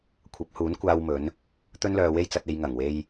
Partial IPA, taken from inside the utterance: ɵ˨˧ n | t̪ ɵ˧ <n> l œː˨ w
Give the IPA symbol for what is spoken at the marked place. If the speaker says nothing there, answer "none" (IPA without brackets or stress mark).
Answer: n